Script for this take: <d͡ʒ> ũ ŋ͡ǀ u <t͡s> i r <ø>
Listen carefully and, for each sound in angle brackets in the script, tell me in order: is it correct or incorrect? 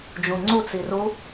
correct, correct, incorrect

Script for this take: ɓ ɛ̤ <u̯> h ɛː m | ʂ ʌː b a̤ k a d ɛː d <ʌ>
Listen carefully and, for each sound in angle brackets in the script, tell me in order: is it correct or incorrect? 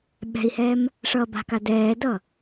incorrect, correct

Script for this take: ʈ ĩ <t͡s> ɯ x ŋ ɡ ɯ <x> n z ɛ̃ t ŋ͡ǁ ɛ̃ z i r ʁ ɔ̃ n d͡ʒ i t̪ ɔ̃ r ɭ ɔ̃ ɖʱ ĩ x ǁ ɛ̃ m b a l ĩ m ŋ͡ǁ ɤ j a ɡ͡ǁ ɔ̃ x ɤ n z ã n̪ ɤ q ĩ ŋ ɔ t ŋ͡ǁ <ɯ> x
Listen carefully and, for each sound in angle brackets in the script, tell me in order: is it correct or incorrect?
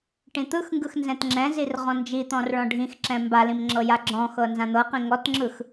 incorrect, correct, correct

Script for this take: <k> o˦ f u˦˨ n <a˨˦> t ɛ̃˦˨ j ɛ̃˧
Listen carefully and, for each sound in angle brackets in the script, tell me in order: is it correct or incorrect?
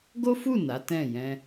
incorrect, correct

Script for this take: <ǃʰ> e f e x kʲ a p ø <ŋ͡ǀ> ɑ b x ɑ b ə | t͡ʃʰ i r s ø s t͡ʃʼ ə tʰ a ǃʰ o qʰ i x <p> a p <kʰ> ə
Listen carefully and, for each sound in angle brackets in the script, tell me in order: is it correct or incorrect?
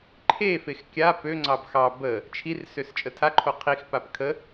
correct, correct, correct, correct

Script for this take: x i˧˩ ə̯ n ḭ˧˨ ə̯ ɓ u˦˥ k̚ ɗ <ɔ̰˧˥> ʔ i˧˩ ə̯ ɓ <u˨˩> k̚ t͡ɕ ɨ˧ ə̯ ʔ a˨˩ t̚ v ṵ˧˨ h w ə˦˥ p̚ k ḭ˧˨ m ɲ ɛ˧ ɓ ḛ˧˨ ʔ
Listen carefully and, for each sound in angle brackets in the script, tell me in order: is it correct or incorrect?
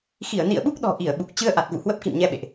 incorrect, correct

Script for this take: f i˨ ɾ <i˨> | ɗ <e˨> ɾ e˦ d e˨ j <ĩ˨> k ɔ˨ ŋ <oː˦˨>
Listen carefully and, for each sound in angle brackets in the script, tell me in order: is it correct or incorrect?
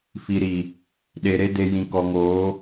correct, correct, correct, incorrect

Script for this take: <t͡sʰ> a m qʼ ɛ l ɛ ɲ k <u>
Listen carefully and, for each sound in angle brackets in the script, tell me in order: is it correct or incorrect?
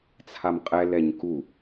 correct, correct

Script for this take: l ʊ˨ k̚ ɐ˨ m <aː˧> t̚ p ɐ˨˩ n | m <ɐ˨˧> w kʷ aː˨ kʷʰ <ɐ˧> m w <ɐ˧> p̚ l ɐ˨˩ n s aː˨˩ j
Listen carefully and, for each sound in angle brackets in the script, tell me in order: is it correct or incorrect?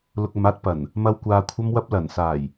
correct, correct, correct, correct

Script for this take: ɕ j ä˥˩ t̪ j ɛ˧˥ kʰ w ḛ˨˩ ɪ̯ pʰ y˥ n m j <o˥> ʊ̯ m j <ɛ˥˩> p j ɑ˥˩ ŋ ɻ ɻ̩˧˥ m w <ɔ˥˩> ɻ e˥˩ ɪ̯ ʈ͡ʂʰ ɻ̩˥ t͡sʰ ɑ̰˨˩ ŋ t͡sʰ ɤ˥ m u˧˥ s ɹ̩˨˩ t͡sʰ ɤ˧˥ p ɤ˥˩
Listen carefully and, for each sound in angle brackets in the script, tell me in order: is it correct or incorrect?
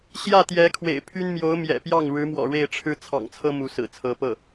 incorrect, incorrect, incorrect

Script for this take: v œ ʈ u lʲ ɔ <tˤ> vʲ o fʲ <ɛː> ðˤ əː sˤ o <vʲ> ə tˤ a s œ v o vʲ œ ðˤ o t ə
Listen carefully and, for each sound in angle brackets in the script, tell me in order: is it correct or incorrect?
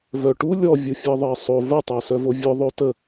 incorrect, incorrect, incorrect

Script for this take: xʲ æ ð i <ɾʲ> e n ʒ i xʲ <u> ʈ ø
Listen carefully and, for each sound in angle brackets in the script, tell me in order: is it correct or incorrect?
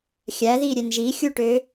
correct, correct

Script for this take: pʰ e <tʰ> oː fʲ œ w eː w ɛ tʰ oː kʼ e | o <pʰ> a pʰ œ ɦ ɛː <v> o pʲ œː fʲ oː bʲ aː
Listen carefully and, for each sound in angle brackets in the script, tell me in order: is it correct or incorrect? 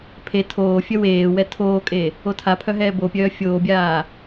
correct, incorrect, incorrect

